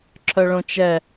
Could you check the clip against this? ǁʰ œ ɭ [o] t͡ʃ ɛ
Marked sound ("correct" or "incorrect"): incorrect